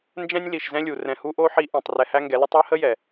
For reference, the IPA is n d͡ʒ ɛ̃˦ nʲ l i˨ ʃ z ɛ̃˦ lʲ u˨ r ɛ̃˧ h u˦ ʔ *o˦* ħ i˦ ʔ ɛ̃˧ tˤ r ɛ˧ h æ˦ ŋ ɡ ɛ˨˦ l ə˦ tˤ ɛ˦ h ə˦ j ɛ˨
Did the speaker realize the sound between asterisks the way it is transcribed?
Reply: yes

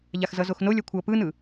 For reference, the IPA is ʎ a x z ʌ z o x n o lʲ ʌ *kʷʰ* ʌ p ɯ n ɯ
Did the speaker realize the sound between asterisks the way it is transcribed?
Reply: yes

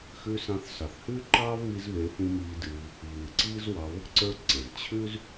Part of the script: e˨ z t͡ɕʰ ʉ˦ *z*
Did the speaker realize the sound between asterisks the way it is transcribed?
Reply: yes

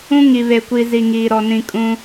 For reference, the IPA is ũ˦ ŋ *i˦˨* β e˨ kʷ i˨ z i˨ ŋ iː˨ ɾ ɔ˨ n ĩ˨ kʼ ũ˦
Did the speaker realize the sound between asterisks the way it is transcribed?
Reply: no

